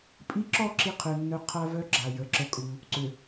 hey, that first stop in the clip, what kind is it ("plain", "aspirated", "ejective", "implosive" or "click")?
ejective